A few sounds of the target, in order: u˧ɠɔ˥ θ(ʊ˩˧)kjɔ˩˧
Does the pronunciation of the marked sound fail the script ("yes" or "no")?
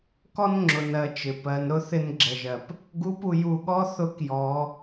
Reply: yes